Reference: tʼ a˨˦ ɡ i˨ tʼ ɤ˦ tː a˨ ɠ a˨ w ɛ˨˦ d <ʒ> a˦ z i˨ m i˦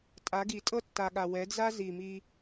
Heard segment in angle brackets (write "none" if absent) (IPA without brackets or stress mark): z